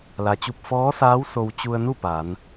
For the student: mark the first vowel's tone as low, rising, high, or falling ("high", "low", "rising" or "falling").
low